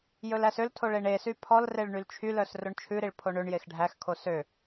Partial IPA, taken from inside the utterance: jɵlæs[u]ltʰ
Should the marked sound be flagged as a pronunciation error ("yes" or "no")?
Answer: yes